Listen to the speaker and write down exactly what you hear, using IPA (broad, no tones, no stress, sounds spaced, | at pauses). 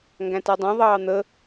ŋ ɡ æ̃ t æ dˤ ɛ̃ ðˤ ɑː n̪ ə